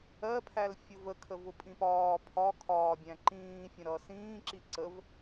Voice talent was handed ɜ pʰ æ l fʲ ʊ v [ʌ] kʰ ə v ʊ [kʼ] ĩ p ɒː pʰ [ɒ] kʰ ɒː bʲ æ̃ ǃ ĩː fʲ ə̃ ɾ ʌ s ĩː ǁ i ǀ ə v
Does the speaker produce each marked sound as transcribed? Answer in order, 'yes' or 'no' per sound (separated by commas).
no, no, yes